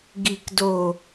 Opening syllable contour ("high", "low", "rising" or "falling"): low